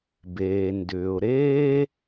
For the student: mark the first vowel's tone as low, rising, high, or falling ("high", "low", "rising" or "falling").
low